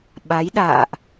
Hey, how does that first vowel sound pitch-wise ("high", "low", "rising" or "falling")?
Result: rising